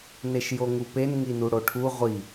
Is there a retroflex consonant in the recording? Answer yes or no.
yes